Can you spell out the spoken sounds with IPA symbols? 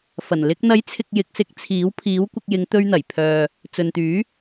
f ɐ˨˩ n l ɪ˧ k̚ n̪ ɐ˨˥ j t͡sʰ ɪ˨ k̚ j ɪ˨ k̚ s ɪ˧ k̚ t͡sʰ iː˨˥ w pʰ iː˨˥ w kʷ ɪ˧ k̚ j ɪ˨˧ ŋ t̪ ɵ˧ ɥ n̪ ɐ˨˩ j pʰ œː˨ | t͡s ɵ˨ n t̪ yː˨˥

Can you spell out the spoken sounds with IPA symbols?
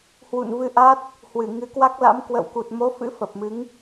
h w ṵ˧˨ n v ɨ˧ ʔ a˦˥ t̚ | h w ɨ˧˩ ŋ ɨ˨˦ k w a˦˥ k̚ l a̰˧˥ m k w ə̰˧˨ w k u˨˩ t̚ m o˨˦ f ɨ̰˧˥ f ə˨˩ p̚ m ɨ˨˦ ŋ

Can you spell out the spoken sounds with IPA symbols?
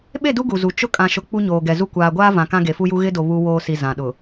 ɓ e˦˨ d u˦ ɡ u˨ z u˨ t͡ʃ ʊ˦ kʼ ã˨ ʃ ʊ˨ k͡p u˦ ɲ oː˨ ɡ ɛ˨ z u˦ kʷ aː˨ ɡʷ aː˦ v ã˨ k ã˦ ɡ e˨ f u˦ j u˦ ɣ ɪ˦ d o˨ β u˦ w oː˨ s i˨ z ã˨ ɗ ʊ˨

